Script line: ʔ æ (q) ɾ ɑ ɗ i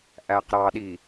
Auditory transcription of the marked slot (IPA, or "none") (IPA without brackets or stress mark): q